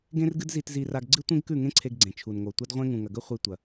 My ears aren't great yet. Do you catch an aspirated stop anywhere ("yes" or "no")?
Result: yes